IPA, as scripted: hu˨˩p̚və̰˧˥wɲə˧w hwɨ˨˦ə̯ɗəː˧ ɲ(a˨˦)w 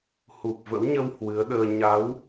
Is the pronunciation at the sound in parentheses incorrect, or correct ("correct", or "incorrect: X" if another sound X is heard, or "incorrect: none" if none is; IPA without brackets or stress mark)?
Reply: correct